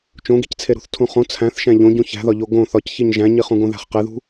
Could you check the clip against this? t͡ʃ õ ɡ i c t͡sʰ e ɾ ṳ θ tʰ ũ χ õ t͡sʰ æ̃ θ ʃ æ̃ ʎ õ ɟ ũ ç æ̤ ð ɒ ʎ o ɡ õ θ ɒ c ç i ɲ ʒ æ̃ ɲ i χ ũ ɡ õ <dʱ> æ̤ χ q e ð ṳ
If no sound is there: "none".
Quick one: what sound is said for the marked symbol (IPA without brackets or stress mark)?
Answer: ð